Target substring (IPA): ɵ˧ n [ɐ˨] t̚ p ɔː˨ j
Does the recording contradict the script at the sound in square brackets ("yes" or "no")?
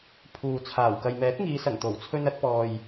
yes